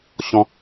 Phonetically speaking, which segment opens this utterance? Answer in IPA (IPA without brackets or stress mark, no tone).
ɕ